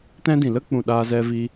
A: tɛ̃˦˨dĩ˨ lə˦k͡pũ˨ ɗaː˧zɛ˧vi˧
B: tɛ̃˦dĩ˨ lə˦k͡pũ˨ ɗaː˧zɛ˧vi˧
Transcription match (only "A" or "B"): B